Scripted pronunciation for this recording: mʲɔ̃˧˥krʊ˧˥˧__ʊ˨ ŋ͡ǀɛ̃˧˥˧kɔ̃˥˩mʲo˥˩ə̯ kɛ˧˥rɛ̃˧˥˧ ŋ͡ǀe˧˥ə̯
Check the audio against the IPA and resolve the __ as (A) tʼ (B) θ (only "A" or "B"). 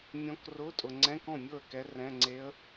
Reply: A